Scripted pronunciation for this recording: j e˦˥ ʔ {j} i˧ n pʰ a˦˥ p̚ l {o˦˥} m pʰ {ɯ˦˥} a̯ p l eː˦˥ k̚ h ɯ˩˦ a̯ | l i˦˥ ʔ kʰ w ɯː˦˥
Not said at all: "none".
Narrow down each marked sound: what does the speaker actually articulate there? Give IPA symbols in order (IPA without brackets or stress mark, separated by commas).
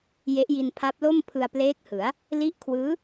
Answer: j, o˥˩, ɯ˧